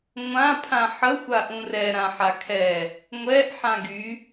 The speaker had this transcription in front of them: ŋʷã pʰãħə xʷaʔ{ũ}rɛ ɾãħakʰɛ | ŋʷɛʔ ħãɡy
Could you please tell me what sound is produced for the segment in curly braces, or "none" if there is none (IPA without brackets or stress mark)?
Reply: ũ